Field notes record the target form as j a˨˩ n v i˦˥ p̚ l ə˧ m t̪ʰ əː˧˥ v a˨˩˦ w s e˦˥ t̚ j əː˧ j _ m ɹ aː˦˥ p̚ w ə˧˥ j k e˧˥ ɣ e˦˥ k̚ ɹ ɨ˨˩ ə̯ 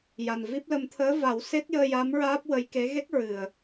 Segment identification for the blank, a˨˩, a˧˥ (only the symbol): a˧˥